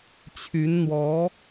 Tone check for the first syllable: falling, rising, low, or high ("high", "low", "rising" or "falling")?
rising